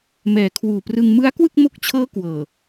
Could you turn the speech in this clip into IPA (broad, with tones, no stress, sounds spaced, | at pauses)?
m ɛː˨˩ kʰ w uː˨˩ p r ɯ˧ ŋ m ɯ˦˥ a̯ k w ɯ˥˩ k̚ m o˦˥ k̚ t͡ɕʰ ɤː˦˥ k w ɤː˨˩